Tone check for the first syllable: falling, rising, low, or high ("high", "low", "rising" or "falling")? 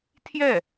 falling